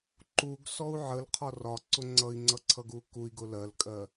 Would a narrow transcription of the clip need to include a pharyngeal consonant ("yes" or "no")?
yes